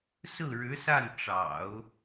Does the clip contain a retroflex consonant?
yes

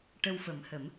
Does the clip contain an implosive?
no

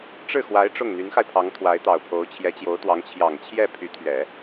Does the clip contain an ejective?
no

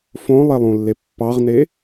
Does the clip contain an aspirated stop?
no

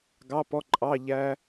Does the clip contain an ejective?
yes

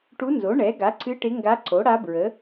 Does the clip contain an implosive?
no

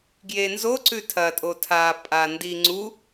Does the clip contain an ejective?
yes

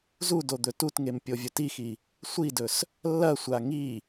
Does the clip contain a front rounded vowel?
no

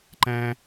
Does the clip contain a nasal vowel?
yes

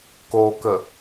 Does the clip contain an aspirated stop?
no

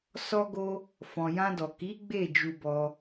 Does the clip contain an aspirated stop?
no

